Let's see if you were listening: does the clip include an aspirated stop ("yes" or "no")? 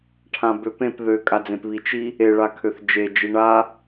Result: yes